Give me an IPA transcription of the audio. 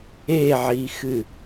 e ʕ i x ɨ

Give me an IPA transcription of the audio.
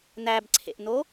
n æ b ǀʰ ḛ ʔ n o

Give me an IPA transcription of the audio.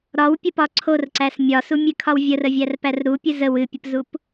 ɾ ɒ w pʲ ə p ɒ ǀʰ o r ǀ æ s mʲ ɒ s u mʲ ɨ kʰ ɒ w vʲ ə r ə vʲ æ r p æ r ɾ u pʲ ɨ z ə w ɨ pʲ ə p z u p

